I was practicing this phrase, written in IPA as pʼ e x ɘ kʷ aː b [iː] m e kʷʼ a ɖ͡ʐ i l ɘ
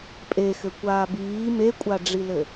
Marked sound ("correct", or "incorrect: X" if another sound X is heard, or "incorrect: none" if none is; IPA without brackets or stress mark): correct